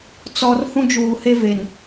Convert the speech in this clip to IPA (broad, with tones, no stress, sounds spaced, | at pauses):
t͡s ɔ˨ r h ũ˦ d͡ʒ uː˨ h e˦ v e˨ n